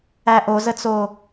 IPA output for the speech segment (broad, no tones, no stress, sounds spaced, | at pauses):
æ ʔ o z ə t͡s o